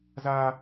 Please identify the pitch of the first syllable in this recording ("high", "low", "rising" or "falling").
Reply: high